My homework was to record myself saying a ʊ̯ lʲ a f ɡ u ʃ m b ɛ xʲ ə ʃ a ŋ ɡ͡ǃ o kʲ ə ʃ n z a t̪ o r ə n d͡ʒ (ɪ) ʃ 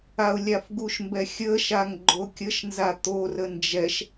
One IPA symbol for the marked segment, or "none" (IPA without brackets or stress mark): ɛ